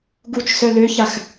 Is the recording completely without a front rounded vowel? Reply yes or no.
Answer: no